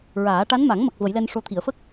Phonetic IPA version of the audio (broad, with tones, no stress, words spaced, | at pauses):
ɹaː˨˩˦ ʈa˧˥nma˨˩˦ŋmə˨˩k̚ və˨˩˦jlɛ˧nʂo˧˥t̪ʰi˨˩˨ə̯ fə˦˥k̚